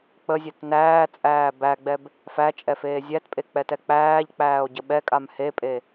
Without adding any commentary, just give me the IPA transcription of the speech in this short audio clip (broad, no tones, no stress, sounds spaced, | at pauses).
k͡p ə zʲ ɛ t n æː t͡sʼ æː b æ ɡ͡b ɛ b | f æ t͡ʃʼ ɛ f eː zʲ æ t pʼ e k͡p ɛ t ɛ k͡p æː ʎ k͡p æː o̯ ɟ ə ɓ ɛ kʼ a m h e pʼ e